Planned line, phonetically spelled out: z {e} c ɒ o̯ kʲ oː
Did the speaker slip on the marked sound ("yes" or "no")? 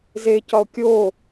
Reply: no